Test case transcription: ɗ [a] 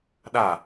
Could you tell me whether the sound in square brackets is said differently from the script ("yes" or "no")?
no